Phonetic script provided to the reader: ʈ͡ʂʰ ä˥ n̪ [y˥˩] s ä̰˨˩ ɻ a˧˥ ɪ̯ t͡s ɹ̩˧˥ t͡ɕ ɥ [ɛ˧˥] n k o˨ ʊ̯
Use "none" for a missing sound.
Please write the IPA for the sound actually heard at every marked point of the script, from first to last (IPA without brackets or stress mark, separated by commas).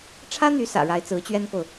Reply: y˧˥, ɛ˥